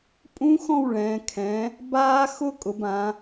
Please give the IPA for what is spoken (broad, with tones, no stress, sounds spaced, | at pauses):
pʼ ũ˦˥ x ɔ̃˥˨ w ɭ ɛ̃ː˩˧ kʰ ɛ̃˩˧ | b aː˦˥ x ʊ˦˥ kʼ ʊ˩˧ b ã˩˧